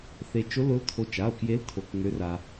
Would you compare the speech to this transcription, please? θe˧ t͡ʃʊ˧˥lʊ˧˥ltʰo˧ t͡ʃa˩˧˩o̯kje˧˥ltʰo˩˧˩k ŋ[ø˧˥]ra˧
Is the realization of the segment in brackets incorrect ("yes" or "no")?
no